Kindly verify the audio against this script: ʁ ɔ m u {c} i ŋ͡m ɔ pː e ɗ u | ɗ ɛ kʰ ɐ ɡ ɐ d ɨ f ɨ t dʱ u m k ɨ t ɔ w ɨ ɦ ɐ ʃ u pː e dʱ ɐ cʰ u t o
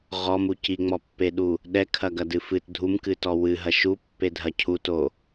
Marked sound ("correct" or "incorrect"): correct